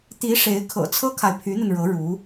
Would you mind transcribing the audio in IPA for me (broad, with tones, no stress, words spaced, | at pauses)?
t̪i˧˥ ʂe˧˥ɪ̯kʰɤ̰˨˩ t͡sʰɤ˥kʰa˨ɪ̯ pʰy˧˥n̪ə˧nɻɤ˧˥ ɻu˧˥